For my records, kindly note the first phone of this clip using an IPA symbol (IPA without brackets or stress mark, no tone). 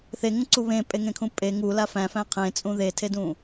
θ